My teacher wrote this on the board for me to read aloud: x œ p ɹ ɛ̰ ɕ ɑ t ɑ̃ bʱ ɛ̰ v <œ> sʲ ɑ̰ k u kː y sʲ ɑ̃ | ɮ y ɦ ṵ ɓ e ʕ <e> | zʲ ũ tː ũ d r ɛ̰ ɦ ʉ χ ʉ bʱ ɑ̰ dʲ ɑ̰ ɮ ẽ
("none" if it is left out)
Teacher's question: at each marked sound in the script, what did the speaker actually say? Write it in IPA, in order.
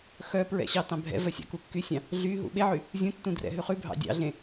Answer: œ, y

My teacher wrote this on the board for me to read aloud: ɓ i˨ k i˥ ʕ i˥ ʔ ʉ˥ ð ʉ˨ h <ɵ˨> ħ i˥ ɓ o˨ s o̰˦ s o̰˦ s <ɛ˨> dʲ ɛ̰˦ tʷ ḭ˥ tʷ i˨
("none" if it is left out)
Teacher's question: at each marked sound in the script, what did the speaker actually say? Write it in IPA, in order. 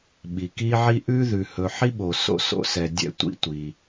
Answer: ɵ˨, ɛ˨

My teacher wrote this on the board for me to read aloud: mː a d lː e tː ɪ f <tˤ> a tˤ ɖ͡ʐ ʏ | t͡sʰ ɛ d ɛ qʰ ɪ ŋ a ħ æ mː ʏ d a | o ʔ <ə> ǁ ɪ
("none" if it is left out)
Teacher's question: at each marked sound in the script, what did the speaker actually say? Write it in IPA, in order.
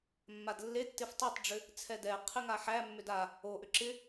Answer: tˤ, ʏ

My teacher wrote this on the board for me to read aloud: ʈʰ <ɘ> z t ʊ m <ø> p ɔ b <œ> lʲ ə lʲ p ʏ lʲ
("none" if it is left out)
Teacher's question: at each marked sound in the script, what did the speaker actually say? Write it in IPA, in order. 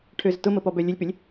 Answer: ø, ə, œ

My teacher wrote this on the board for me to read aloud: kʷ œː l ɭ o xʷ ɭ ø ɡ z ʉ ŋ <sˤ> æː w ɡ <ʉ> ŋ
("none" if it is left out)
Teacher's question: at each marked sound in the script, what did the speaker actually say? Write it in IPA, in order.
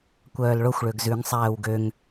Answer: sˤ, ø

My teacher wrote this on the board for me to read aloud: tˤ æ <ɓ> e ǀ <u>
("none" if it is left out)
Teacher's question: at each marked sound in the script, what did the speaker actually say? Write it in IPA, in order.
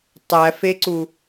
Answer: f, u

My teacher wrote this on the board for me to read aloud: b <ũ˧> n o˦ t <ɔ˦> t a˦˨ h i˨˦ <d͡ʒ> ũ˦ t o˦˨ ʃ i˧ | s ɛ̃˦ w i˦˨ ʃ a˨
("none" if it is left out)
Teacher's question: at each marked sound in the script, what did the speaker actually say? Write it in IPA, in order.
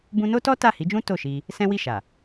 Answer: ũ˧, ɔ˦, d͡ʒ

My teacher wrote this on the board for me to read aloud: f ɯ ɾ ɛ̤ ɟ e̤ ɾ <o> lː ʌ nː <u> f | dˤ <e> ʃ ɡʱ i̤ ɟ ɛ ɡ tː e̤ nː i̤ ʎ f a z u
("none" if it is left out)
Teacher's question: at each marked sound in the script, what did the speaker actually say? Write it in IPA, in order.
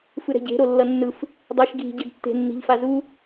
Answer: o, ɯ, e

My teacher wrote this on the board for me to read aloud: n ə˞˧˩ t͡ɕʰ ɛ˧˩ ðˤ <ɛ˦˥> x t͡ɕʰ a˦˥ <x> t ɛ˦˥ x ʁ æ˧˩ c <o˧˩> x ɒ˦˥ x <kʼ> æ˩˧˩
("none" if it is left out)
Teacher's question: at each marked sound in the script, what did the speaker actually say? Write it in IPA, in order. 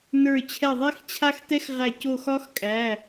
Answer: ɛ˦˥, x, o˧˩, kʼ

